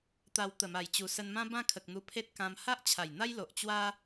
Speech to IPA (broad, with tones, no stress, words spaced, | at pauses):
t̪a˧w t̪ə˨˩ma˨˩j t͡ɕu˨˩sə˧nmã˦ bã˦kʰə˨k̚n̪u˧ pʰe˦t̚kã˧m ha˦ʔt͡ɕʰa˨˩j n̪a˦jlo˨ʔ t͡ɕwa˦